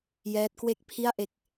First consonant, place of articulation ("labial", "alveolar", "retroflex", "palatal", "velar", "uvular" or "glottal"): palatal